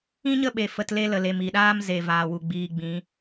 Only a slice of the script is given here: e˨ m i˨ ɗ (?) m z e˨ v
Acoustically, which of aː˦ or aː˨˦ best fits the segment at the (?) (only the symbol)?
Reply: aː˦